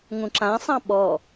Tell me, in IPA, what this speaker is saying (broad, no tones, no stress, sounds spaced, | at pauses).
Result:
ŋ ũ ǁ ã sˤ ɑ̃ ɓ ɔ